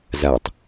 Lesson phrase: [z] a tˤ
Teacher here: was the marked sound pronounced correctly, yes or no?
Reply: yes